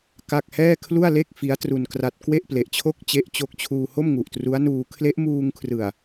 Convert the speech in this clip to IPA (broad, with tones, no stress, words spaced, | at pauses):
ka˥˩k̚ hɛː˥˩kʰlu˥˩a̯le˥˩k̚ fi˦˥a̯ tru˧nkra˦˥t̚ kwe˥˩ʔple˨˩ʔt͡ɕʰo˥˩k̚ t͡ɕe˦˥ʔt͡ɕo˦˥k̚t͡ɕʰuː˧ ho˥˩mŋu˨˩ʔtru˦˥a̯nuː˧ kʰle˦˥ʔmuː˧ŋkʰrɯ˨˩a̯